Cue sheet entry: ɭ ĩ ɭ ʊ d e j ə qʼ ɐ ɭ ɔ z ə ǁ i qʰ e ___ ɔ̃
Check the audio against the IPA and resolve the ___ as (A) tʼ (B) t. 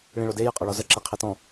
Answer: B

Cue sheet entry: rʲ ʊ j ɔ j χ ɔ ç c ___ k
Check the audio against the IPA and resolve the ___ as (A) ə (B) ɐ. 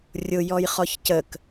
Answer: A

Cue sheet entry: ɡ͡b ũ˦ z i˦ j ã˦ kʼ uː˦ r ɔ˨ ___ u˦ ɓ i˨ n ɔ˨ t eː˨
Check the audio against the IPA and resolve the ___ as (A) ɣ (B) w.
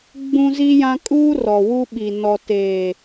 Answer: B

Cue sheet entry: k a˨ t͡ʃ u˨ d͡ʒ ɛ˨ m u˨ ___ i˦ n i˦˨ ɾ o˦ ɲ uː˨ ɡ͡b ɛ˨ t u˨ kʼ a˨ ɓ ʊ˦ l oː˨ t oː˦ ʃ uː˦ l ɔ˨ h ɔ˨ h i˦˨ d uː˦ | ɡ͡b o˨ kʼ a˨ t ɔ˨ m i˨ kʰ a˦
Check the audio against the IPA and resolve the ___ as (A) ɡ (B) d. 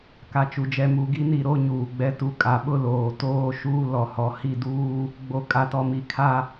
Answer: A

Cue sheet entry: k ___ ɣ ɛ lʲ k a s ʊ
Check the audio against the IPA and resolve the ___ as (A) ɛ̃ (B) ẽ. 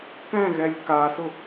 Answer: A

